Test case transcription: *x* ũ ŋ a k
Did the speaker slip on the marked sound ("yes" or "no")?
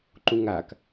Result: yes